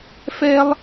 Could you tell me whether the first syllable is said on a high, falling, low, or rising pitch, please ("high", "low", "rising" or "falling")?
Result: high